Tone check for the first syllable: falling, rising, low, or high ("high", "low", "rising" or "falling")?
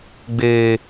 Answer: high